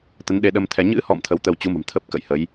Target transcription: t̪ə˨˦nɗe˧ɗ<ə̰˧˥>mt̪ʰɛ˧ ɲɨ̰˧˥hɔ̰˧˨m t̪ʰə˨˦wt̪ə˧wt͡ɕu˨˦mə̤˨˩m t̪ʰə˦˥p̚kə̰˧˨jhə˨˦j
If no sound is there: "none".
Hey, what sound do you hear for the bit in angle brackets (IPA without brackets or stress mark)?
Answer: ə˧